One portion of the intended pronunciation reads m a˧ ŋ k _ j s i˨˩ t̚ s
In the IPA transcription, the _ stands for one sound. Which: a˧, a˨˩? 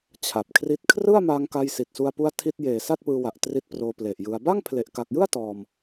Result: a˧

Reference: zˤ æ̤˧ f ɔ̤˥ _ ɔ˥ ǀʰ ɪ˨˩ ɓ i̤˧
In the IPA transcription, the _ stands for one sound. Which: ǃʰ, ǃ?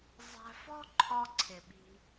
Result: ǃʰ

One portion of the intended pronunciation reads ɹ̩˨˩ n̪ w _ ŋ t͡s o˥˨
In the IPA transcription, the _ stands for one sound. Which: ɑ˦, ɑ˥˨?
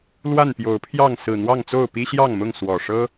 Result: ɑ˥˨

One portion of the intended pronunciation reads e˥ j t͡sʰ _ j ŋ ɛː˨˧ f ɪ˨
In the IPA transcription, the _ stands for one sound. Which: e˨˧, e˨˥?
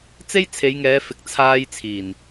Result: e˨˧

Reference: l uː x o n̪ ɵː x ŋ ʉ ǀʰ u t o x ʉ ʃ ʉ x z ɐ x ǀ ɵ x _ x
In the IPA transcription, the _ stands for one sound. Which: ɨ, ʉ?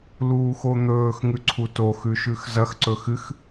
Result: ɨ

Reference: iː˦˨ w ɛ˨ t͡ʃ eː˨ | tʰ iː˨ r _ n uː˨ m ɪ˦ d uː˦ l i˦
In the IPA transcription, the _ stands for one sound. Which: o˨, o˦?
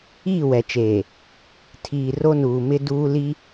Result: o˦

